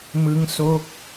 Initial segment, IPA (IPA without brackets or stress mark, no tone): m